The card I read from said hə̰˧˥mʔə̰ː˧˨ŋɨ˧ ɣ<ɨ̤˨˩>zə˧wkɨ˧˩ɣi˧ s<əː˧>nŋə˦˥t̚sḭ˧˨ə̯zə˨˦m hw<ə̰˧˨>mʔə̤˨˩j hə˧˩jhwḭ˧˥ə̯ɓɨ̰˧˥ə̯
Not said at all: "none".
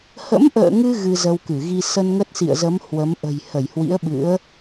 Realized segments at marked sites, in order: ɨ˧, ə˧, ə˨˦

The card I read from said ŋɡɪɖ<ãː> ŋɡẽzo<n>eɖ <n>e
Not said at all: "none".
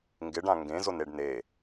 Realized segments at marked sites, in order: ã, n, n

